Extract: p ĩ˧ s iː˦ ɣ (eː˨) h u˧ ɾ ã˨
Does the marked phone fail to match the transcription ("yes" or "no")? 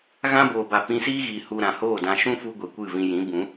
yes